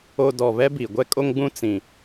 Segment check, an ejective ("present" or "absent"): present